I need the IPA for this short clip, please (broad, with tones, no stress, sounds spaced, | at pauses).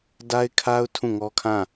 d a˦ ɪ̯ kʰ a˦ ʊ̯ tʰ ũ˦˨ ŋ ɔ˦ kʰ ã˦˨